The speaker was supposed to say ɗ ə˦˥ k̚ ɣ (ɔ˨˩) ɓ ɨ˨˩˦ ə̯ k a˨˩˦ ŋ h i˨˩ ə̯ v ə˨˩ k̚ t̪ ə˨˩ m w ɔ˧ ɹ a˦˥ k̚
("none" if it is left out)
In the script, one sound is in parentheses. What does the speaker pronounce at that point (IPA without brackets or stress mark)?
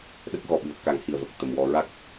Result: ɔ˨˩